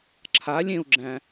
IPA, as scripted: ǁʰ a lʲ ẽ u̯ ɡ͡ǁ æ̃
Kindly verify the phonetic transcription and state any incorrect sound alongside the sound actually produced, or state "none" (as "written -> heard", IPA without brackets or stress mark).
none